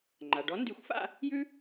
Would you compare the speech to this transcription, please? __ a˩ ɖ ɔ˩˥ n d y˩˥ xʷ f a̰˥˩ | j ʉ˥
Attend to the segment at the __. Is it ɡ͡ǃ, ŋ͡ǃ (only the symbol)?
ŋ͡ǃ